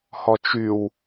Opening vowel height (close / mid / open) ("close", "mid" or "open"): mid